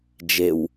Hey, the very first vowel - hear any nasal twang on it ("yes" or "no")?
no